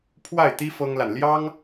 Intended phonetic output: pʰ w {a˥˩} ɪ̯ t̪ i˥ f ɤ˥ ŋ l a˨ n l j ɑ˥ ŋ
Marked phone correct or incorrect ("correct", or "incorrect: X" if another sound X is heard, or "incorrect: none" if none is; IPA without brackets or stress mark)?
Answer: correct